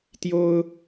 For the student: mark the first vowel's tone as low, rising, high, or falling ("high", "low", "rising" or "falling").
high